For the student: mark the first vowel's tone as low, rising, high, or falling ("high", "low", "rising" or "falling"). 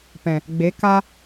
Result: low